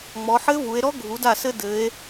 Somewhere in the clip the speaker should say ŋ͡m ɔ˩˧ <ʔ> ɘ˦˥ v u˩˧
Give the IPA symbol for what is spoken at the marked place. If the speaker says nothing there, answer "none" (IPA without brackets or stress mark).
ħ